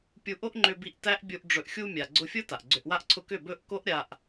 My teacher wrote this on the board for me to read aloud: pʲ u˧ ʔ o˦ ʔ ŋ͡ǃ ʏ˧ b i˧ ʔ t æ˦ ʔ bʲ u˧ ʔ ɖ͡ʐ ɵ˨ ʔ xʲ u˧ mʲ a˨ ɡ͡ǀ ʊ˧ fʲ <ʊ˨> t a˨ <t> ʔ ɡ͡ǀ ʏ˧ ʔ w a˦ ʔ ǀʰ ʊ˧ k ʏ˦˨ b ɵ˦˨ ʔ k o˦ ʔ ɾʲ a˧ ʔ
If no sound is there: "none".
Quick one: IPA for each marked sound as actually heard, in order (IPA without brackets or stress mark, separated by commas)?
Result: ʊ˦, none